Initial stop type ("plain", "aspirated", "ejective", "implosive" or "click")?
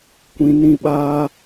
plain